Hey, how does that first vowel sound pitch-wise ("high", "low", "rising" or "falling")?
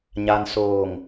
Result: low